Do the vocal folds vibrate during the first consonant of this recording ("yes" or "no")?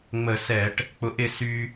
yes